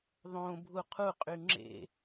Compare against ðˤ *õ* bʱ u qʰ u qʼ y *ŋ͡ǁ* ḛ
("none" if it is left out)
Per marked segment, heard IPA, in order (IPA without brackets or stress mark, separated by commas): õ, ŋ͡ǁ